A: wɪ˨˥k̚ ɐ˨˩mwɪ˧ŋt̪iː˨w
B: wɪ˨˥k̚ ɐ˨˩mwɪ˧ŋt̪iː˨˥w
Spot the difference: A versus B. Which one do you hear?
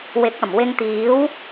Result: B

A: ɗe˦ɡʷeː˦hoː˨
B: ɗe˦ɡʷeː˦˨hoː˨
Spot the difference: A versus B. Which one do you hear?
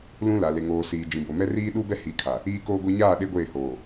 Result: B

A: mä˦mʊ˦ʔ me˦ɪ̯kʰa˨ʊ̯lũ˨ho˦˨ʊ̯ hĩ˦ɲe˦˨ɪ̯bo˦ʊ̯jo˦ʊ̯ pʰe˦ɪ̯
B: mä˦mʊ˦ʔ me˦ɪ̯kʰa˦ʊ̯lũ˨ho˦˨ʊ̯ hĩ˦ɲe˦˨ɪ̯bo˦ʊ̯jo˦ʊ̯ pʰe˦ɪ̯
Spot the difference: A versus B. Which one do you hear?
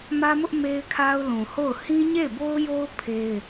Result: B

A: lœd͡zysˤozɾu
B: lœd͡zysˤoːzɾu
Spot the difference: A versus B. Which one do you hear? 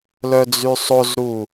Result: A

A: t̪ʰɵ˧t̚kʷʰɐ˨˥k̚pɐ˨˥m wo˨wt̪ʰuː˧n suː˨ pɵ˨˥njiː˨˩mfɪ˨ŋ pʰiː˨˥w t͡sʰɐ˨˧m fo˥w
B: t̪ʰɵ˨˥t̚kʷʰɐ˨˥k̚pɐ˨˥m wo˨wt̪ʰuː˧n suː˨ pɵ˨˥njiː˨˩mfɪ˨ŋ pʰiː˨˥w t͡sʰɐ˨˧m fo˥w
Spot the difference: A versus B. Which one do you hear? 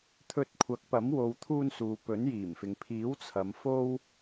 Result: A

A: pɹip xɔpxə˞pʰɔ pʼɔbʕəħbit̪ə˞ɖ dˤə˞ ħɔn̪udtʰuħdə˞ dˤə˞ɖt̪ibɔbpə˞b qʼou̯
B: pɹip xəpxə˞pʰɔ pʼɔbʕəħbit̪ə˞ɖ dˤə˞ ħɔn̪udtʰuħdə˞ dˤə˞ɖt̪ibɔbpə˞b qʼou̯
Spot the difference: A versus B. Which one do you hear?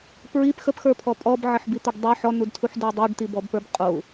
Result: B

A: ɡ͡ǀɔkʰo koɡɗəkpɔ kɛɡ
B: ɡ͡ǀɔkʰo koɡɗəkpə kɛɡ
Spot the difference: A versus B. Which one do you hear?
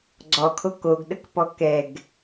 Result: A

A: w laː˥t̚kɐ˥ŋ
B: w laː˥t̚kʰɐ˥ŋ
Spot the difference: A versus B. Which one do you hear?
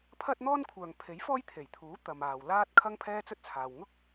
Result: B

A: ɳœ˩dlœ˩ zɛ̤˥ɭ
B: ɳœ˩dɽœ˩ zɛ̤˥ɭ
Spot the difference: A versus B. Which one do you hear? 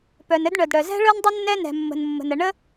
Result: B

